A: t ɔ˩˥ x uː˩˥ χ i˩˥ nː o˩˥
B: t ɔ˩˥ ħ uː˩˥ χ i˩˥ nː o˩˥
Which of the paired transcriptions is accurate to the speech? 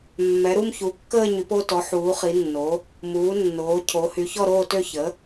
B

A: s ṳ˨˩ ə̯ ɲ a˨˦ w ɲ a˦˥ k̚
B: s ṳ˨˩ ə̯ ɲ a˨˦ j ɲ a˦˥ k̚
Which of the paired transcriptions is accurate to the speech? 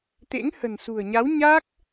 A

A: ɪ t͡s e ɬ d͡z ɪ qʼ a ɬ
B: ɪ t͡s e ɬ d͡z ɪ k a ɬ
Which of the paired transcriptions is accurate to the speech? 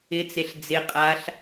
A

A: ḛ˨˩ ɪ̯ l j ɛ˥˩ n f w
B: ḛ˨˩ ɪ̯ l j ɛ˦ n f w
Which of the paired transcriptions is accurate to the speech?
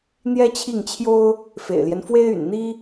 B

